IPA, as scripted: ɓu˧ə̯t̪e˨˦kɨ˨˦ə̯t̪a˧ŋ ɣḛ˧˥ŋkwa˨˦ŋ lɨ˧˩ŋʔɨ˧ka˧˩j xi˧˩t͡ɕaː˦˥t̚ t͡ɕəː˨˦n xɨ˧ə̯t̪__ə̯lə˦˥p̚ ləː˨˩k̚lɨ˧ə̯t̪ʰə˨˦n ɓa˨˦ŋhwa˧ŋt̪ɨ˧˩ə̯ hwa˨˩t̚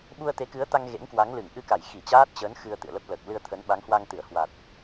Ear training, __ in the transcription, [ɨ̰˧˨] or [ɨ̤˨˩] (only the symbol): ɨ̰˧˨